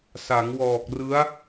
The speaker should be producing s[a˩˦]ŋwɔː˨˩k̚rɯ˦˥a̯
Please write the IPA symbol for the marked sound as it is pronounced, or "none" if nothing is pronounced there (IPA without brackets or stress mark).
a˩˦